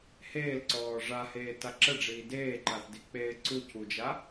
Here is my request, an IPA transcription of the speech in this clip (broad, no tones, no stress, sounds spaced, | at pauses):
h eː l ǀ ɔː ʐ a h eː t a ǁ ə ɖ͡ʐ iː d eː ǃ a θ d i k͡p eː ǀ u c u d͡ʒ a